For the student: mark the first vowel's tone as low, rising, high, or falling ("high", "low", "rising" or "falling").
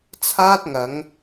high